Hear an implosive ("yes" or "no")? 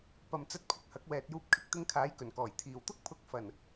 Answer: no